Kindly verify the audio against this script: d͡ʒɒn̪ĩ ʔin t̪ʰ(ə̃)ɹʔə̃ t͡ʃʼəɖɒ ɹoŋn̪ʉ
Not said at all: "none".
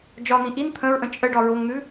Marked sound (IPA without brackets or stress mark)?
ə̃